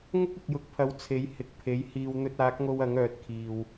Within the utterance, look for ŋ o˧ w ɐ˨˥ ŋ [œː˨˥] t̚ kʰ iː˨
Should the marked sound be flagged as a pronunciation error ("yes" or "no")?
no